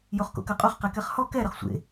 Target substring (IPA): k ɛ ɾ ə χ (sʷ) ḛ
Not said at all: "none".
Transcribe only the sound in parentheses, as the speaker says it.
sʷ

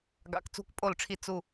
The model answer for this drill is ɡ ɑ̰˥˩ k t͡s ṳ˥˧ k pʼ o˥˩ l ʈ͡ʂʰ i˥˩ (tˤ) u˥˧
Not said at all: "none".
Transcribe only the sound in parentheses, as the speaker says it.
t͡s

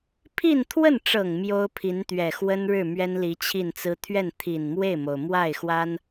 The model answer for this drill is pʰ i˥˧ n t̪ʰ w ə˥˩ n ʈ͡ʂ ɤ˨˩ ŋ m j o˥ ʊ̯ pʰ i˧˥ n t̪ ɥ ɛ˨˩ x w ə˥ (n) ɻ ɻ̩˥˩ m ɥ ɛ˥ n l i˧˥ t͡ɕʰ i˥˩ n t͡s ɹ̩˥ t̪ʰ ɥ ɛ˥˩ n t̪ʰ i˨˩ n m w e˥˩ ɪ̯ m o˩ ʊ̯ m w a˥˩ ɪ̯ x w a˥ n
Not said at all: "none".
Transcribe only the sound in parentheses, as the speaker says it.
n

